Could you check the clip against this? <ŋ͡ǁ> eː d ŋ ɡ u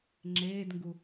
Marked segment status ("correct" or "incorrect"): correct